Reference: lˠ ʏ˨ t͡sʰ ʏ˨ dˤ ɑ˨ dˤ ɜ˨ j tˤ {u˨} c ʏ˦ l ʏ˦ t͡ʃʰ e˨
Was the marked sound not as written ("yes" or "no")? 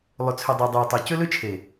yes